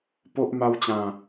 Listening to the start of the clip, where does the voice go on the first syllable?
high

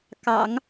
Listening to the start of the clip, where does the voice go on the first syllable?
low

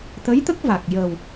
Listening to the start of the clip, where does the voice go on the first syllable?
rising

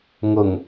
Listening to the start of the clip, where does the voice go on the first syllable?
low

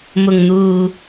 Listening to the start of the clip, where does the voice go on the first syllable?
low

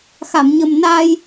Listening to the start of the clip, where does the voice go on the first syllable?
low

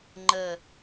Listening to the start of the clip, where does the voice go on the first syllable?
low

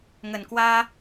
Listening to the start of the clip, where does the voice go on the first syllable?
low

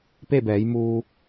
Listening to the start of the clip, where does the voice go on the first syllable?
falling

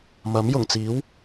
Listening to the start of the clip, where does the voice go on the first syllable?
rising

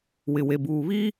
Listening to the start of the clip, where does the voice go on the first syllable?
low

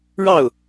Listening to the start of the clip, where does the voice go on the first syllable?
falling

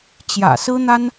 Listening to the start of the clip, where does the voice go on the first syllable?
low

